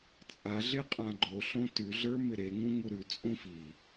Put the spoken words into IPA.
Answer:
t͡sʼ a ɮ e qʼ ã ɡ͡ǃ o ɬ õ t ʉ ɮ ə˞ m ɪ ɾ e ŋ ũ ŋ u ɾ ʉ t͡sʼ ũ f i

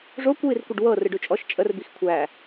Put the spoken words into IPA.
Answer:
ʐ o kʷ w i r kʷ ə ɖ w ɤ r ɨ ɖ ʉ t͡ʃʼ ɔ ʃ t͡ʃʼ ə r b i x kʷʰ æ

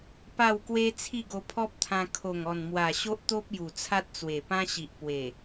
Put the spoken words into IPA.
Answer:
p a˥˧ w k w e˦ t͡sʰ i˥˧ ɡ o˧ pʰ ɔ˦ p̚ t̪ʰ ã˧ kʰ o˨˩ ŋ ɔ˨˩ n m w a˨˩ ɕ o˦ ʔ t̪ o˦ p̚ j u˨˩ t͡sʰ a˦ t̚ t͡s w e˨˩ p ã˦ ɕ i˨ ʔ p w e˨˩

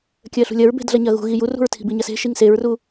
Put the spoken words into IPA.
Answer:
kʲ ɜ ɬ ṳ lʲ ɐ ɹ b e̤ d ɮ ɐ ɲ ɐ ɣ ṳ ɣ i j u r ṳ ɹ tʰ i̤ b i ɲ ɐ s e̤ ʃ i ŋ s e ɹ r u

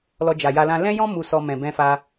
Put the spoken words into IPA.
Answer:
l ɔ˧ d͡ʒ a˨ j a˧ l ã˦ l ɛ̃˦ j ɔ̃˦ m u˧ s ɔ˧ m ɛ̃˨ b ɛ̃˧ f a˧

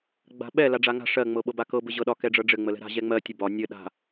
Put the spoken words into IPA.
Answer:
ɡ͡b a̤ ɓ ɛ l a ɖ͡ʐ a ŋ a̤ ʂ ɜ ŋ͡m ɤ ɓ ɤ b a k ɤ b ɘ ʑ ɤ ɗ ɒ k ɛ ɖ͡ʐ ɤ ɖ͡ʐ ɘ ŋ͡m ə l ɛ̤ ɾ a̤ ʑ ɛ ŋ͡m ɜ tʲ ə b ɒ nʲ ɘ ɗ a̤

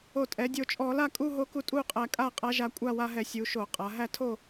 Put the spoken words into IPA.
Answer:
o˧˩˧ tʼ ɛ˩˧ dʲ o˨˩ t͡ʃʼ ɔ˧˩˧ l a˥˧ kʼ u˥˧ ɦ o˧˥ k u˧ tʼ u˥˧ qʼ æ˧ kʼ a˥˧ qʼ a˧˥ ʒ a˧ kʷʼ a˥˧ w a˧ ɦ ɛ˧˩˧ sʲ u˩˧ ʃ o˧˩˧ qʼ a˩˧ ɦ æ˥˧ tʰ o˥˧

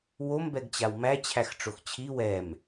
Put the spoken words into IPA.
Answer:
w o m b ɛ ɡ t͡ɕ a w m æ t͡ɕʰ æ x ʈ͡ʂ o x t͡ɕʰ i w ɛ m

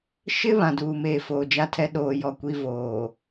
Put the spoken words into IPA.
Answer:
ʃ ɪ˦ β ã˨ d uː˨ m eː˨ f oː˨ d͡ʒ a˦ tʰ ɛ˦ ɗ oː˨ j ɔ˨ kʷ i˦ v oː˨

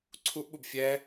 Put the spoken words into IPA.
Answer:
ǀʰ u ʔ ɓ u b fʲ ɛː

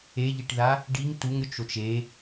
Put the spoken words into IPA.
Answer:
e ʎ i ʈ ð a | ɖ i ŋ t u ŋ ɾʲ o t͡ʃ o t͡ʃ e

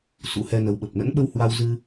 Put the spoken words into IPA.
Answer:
s ṵ˧˥ h ɛ˧ n ə˨˦ w ɓ ə˨˩ p̚ n ə̰˧˥ n ɓ ə˧ w h w a˧ w z ɨ˧

